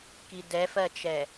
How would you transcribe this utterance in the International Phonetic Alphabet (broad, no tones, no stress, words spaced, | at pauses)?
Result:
kidɛfɜt͡ʃɛ